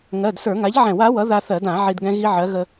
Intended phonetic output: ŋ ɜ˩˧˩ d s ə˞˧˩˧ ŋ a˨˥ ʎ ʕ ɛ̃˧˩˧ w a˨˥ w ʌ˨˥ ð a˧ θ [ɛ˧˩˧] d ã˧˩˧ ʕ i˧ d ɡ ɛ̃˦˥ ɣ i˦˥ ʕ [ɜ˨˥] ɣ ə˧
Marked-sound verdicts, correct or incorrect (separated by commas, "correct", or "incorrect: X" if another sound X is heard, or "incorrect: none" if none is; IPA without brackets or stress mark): incorrect: ɜ˧˩˧, correct